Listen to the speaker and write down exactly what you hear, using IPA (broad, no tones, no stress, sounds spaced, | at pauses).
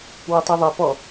w ɐ tˤ ɛ ðˤ ɐ p ɔ